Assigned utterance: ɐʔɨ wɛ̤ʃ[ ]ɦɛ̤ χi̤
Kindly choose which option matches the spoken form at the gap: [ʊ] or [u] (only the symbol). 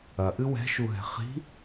u